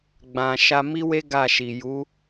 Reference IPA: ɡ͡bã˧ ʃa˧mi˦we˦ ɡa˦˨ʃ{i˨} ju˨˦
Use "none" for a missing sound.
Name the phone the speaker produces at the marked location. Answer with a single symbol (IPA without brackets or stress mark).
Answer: i˨